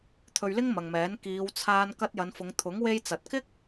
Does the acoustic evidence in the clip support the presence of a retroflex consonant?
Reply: no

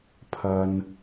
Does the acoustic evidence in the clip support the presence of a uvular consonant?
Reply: no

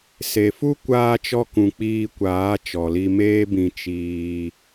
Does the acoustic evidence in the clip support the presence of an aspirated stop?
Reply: no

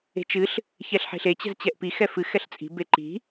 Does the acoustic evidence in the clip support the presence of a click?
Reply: yes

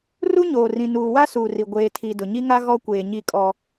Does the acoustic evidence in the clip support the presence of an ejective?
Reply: yes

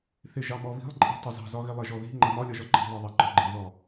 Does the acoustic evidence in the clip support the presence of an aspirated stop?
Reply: no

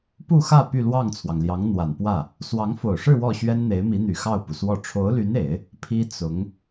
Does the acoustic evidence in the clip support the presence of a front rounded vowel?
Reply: yes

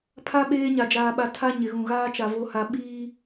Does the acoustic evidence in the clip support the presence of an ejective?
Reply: no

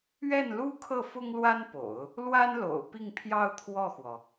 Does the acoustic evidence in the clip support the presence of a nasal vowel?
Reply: no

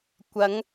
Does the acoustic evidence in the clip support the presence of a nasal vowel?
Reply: no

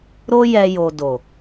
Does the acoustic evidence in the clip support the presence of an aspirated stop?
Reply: no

